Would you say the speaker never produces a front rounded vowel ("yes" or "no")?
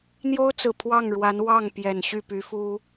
no